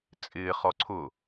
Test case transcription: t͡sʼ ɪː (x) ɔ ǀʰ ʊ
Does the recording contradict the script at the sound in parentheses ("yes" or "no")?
yes